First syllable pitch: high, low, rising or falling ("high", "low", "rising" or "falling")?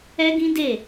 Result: high